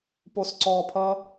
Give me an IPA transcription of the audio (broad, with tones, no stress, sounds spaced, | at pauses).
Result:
p o˧˩ s ǀ ɔː˧˩ pʰ ʌ˦